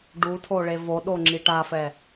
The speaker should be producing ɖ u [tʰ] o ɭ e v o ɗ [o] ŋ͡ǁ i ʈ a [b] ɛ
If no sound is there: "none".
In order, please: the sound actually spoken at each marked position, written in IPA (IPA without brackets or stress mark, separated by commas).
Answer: tʰ, o, f